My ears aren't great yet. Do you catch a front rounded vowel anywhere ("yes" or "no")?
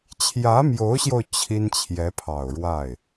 no